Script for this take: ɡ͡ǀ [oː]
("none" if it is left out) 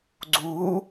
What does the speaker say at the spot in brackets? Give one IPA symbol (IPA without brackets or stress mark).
uː